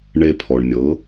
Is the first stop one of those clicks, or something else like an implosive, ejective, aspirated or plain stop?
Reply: aspirated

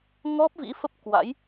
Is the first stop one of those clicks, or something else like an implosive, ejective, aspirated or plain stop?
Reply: plain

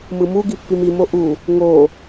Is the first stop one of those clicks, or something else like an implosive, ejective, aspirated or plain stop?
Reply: plain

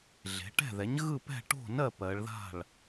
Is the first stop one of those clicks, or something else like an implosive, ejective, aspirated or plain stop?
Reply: plain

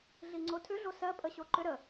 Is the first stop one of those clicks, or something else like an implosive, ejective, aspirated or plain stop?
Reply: click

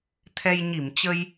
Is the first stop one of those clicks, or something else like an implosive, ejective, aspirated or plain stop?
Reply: aspirated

